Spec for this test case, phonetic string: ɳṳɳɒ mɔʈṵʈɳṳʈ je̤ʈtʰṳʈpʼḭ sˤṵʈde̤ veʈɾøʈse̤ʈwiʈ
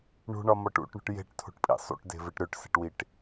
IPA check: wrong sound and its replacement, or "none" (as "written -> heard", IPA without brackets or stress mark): none